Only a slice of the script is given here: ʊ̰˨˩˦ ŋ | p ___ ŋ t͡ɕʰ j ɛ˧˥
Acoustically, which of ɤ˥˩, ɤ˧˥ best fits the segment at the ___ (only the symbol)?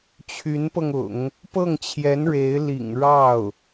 ɤ˥˩